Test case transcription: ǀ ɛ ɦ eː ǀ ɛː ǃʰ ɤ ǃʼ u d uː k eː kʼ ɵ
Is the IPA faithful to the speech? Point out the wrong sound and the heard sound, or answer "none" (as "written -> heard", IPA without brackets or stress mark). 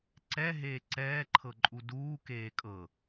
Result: ɵ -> ɤ